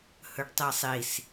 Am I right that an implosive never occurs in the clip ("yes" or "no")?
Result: yes